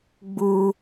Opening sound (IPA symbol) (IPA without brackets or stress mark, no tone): ɡ͡b